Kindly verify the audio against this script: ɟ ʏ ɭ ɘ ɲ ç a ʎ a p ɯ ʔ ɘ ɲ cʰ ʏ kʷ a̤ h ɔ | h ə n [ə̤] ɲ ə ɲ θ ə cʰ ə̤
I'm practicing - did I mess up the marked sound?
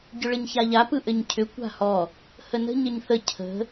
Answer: no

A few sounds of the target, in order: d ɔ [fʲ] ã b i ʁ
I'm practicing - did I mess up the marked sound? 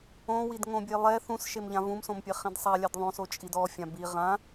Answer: no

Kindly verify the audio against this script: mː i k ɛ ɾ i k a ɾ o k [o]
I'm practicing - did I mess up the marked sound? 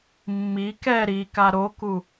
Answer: yes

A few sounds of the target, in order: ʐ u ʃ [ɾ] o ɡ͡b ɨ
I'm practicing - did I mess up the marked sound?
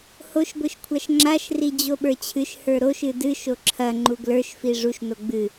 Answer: yes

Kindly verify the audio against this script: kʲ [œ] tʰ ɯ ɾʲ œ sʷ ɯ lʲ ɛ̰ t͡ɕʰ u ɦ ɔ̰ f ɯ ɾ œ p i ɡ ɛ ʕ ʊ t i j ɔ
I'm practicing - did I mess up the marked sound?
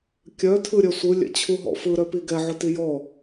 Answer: no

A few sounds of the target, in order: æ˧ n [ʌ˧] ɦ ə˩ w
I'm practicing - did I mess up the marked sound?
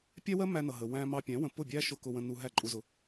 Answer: yes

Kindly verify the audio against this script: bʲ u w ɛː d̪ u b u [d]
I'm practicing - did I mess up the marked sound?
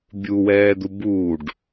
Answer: yes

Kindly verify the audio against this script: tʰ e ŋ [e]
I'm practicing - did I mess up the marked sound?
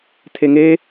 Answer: no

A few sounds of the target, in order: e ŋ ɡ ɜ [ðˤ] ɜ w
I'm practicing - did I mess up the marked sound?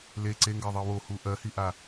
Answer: no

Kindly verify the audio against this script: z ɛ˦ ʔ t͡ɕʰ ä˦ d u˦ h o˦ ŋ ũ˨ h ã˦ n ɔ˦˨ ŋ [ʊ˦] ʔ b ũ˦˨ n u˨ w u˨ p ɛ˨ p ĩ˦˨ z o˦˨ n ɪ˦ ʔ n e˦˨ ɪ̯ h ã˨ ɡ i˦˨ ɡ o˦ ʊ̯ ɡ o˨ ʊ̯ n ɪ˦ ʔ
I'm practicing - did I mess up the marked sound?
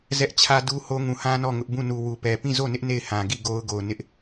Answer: no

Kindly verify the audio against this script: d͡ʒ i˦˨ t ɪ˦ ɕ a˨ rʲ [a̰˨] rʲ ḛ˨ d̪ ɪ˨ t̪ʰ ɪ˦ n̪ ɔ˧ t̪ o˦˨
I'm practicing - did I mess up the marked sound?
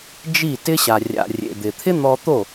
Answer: no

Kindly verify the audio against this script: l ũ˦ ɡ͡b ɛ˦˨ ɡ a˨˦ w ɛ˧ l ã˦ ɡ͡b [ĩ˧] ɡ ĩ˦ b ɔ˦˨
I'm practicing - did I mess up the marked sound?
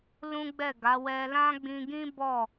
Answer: no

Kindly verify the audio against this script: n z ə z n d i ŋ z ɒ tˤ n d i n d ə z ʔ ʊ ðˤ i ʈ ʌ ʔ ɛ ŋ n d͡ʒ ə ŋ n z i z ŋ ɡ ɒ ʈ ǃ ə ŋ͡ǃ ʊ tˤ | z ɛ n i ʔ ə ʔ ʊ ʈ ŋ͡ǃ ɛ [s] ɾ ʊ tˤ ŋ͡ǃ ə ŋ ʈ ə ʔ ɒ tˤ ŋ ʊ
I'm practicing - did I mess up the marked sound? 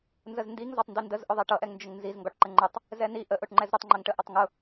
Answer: yes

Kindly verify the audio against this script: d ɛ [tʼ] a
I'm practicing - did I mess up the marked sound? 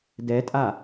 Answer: no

